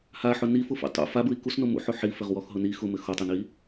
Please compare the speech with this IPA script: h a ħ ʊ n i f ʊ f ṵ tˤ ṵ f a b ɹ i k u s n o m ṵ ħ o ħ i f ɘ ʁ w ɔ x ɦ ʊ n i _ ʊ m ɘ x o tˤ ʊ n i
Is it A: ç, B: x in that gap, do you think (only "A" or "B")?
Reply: B